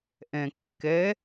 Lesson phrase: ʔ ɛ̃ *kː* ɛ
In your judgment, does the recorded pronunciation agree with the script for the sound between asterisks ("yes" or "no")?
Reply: yes